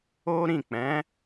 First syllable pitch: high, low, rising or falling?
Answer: high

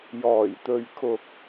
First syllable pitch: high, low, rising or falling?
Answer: low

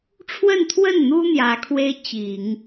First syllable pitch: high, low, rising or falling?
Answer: falling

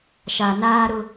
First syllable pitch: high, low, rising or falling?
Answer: low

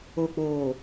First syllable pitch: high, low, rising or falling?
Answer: low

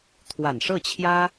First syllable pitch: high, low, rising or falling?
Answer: low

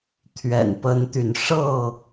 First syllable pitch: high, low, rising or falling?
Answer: low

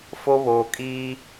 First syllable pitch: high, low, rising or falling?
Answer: high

